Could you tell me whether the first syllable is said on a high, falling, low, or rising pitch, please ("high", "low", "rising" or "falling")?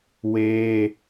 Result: high